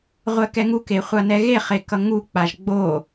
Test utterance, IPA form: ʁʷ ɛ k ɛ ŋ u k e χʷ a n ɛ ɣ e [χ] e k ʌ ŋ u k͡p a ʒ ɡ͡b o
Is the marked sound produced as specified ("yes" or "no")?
yes